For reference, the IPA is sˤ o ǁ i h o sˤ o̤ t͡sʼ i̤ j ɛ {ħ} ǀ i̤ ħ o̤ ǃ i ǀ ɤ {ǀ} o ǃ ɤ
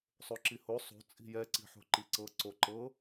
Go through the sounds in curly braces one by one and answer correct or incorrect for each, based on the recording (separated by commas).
incorrect, correct